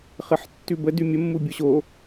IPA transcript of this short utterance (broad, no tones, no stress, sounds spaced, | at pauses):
χ ə ħ tː ʉ b ə d ʉ mʲ ə mː u bʲ o ɕ o